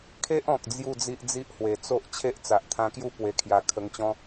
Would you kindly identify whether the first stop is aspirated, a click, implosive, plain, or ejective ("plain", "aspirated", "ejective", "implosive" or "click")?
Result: aspirated